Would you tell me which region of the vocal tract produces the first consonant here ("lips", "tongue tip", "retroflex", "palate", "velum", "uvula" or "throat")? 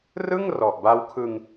tongue tip